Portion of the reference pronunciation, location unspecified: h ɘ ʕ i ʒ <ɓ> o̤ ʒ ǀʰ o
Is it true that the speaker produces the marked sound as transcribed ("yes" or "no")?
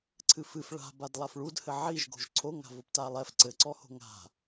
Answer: no